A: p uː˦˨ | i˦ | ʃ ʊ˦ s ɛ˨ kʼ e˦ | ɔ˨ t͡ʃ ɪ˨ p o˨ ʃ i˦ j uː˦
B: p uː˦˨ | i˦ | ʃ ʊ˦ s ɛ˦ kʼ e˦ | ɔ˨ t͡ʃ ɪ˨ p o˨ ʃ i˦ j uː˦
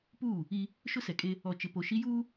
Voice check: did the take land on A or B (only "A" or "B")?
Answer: A